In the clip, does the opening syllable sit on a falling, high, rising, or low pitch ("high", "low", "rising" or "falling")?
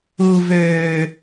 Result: low